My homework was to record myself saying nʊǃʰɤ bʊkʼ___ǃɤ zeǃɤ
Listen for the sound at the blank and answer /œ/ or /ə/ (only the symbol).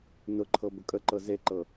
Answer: ə